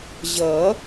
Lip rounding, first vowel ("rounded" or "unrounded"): unrounded